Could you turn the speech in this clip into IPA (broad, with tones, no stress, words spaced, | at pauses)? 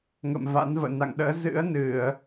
ŋə̰˧˨mva̰˧˥nvə̰ː˧˨ na̰˧˨ŋɗə̰ː˧˥ zɨ̰˧˥ə̯nɨ˧˩˨ə̯